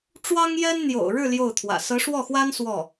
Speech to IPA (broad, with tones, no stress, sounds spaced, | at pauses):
ʈ͡ʂ w ɑ˥ ŋ j ɛ˥ n n̪ j o̰˨˩ ʊ̯ ɻ ɻ̩˥˧ l j o˥˩ ʊ̯ t̪ʰ w ä̰˨˩ s ɤ˧˥ ʂ w ɔ˥˩ x w a˥ n s w ɔ˥˩